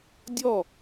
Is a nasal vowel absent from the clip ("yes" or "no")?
yes